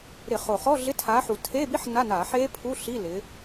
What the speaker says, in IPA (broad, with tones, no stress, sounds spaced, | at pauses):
ɾ ɪ˧˩˧ χ o˨˩ χ ɔ˧˥˧ ɮ ɪ˧˥˧ tʰ aː˨˥ ħ u˨˩ tʰ e˧˥˧ b i˦˥ ħ n a˧˥˧ n aː˧˩˧ ħ eː˦˥ pʰ u˧˥˧ ɬ i˧˥˧ l ɪ˨˥